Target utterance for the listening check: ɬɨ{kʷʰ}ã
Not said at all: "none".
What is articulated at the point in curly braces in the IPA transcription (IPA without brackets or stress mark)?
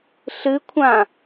kʷʰ